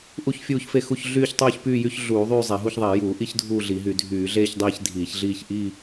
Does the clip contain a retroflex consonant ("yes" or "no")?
no